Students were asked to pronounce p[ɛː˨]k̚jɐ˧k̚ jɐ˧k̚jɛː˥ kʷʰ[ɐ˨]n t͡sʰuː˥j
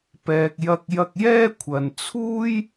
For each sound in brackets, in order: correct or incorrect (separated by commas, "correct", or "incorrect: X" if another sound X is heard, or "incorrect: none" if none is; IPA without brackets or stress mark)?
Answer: correct, correct